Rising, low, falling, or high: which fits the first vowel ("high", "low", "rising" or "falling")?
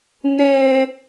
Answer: high